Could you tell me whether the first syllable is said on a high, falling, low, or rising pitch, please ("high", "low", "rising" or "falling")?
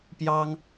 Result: high